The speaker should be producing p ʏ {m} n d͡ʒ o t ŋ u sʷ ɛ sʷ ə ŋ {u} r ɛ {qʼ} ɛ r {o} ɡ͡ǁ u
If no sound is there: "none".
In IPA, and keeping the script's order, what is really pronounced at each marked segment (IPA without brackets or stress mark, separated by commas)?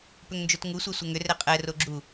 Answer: ŋ, ʏ, qʼ, o